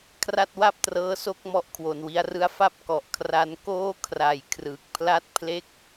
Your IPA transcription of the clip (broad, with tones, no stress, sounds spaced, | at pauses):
kʰ r a˥˩ t̚ w a˥˩ p̚ t r ɤː˦˥ s o˦˥ k̚ m ɔ˥˩ ʔ kʰ w o˧ n w i˦˥ a̯ r ɯ˥˩ a̯ f a˥˩ p̚ k ɔ˨˩ ʔ kʰ r a˧ n k oː˦˥ kʰ r a˨˩ j kʰ r ɯ˨˩ k̚ pʰ l a˥˩ t̚ pʰ l e˥˩ k̚